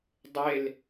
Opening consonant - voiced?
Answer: yes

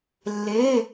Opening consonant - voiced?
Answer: yes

